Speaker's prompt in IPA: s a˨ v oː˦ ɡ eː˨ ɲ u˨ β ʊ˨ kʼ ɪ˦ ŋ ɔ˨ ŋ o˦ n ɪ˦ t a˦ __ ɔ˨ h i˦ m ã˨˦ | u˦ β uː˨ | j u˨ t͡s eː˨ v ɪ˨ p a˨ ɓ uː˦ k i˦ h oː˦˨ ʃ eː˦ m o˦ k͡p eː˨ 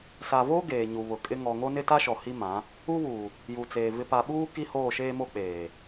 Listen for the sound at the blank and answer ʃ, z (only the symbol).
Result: ʃ